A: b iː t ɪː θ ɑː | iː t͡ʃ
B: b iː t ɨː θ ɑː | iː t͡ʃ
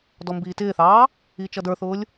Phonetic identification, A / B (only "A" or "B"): A